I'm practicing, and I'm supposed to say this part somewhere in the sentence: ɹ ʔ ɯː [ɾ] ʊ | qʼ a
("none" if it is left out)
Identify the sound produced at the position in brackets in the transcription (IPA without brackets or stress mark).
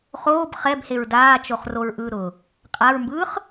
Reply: ɾ